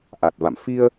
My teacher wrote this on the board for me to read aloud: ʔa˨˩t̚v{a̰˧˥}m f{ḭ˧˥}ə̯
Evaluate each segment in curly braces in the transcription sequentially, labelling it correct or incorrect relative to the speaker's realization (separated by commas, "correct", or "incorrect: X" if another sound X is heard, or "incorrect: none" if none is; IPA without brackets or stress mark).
incorrect: a̰˧˨, incorrect: i˧